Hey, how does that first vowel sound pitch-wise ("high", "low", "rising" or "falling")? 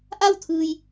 falling